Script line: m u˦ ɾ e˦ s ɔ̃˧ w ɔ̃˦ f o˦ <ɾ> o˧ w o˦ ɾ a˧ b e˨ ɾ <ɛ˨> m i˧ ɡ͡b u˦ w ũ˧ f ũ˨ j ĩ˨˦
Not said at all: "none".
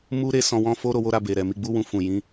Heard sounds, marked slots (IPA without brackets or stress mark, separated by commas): ɾ, ɛ˨